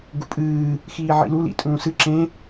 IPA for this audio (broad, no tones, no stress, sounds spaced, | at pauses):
ɡ u pʼ ɨː | x iː ʕ ḭ l u l ḭ tʼ ũː s ɨ ǁ ẽ